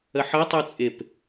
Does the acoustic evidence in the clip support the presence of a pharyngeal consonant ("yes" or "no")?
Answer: yes